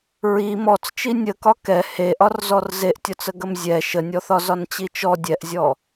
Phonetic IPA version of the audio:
ɹi mɔt͡st͡ʃi nʲəkɒ kɛ heʔɒrzɔr zeʔtʲɒt͡səɡəm zʲɛ ʃənʲɔθɒ zɒnt͡ɕit͡ʃɔ dʲɛʔzʲɔ

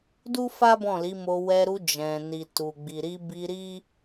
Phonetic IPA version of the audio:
du˦fa˦ bɔ̃˦˨li˨˦mo˧ wɛ˧ɾu˧ d͡ʒɛ̃˨ni˨tu˨ ɡ͡bi˨ɾi˧bi˧ɾi˦

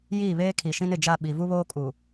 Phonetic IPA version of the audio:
jiː˦˨βeː˦kʰi˨ʃĩ˦n ɪ˨d͡ʒa˦˨ ɓi˨ vu˦βoː˦kʼu˨

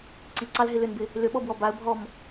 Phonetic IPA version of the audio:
ǀiǀɑlɦɪ lʏnbɪ | lʏɓɔbwɔ baə̯bʱɔm

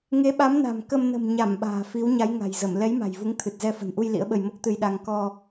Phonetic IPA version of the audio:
ŋe˨˦ ɓa˨˦mna̤˨˩m kə˧m nə̤˨˩mɲa˧˩m ɓa̤ː˨˩fi˨˦wɲa˨˦j ŋa̤˨˩jzə˧˩m lɛ˨˦jma̤˨˩jvu˨˦ŋ t̪ʰɨ˨˩t̚zɛ˧ fə̤˨˩nʔu˧j lḭ˧˥ə̯ɓə˧j mo˦˥k̚t̪ɨ˧jɗa˧ŋ kɔ˧

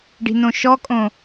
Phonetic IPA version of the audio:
ɖi̤nõʃɔkʼõ

